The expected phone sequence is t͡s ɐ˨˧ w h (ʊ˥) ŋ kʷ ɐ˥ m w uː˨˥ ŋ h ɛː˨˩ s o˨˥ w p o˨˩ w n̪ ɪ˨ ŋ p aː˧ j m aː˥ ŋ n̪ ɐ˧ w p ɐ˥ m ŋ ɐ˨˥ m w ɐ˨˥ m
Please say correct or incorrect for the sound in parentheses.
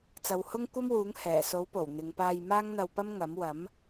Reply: correct